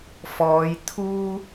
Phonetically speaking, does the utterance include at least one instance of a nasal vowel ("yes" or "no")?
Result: no